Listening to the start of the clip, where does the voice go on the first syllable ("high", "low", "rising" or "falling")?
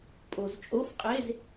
low